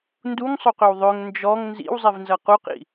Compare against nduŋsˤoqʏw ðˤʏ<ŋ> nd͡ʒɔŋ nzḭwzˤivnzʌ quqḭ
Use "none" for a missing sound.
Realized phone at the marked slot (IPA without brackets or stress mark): ŋ